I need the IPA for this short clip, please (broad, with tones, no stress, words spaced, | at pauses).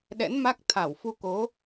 ɗɛ̰˧˥nma˦˥k̚ t̪ʰa˧˩wfu˧ko˨˦